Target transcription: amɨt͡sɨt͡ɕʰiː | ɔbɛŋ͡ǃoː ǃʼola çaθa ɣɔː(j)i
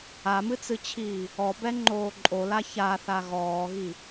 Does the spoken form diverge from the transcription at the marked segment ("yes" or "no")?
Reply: yes